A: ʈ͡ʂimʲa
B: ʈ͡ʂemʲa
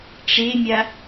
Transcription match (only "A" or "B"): B